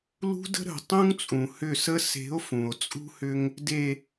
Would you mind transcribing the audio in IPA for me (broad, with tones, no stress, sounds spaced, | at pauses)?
l ṳ˦ d ə̤˦ ɾ ə̤˨ tˤ ũ˦ ŋ t͡sʼ ũ˨ h ʏ˦˨ s ə˦ s e̤˨˦ o̯ f ũ˨ o̯ t͡sʼ ṳ˦ h ʏ˦ ŋ | d e˨